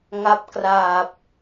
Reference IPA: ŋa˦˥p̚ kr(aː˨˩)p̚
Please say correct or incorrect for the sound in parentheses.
correct